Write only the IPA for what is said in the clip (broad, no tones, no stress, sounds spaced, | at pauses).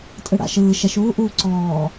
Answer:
tʼ ɯ ɽ a̰ ʃ ɯː ʃ ɛ ʃ uː ʔ uː ǀ ɔː